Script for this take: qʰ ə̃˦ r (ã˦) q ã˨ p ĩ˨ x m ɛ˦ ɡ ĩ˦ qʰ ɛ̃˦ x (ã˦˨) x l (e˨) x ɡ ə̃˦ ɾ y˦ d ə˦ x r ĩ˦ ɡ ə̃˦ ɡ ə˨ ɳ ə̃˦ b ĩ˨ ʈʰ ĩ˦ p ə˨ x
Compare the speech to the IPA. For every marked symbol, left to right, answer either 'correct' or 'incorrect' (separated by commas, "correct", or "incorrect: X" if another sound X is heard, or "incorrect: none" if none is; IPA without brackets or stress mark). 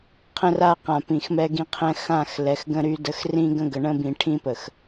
incorrect: a˦, correct, incorrect: ɛ˨